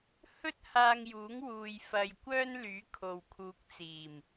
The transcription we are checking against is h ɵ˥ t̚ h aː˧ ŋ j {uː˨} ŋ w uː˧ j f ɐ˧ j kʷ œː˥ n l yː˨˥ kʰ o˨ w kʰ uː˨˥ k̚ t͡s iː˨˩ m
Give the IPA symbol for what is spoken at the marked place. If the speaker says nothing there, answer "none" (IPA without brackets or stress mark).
uː˨˥